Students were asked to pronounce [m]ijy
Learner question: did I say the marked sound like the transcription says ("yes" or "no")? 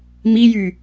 yes